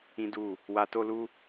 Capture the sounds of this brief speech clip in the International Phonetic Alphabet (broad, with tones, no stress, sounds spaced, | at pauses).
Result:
ĩ˦ d u˦˨ | w a˧ t o˦ l u˦